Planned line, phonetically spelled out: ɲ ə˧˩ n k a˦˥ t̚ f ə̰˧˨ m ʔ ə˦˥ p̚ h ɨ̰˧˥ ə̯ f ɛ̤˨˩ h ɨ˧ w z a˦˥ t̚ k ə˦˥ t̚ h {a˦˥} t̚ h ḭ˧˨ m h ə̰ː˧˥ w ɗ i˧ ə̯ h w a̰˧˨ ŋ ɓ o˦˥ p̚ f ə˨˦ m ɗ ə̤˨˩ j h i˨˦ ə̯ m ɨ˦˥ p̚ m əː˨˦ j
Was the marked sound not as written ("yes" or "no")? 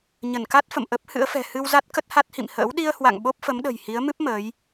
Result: no